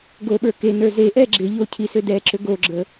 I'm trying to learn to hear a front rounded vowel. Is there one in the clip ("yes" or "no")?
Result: yes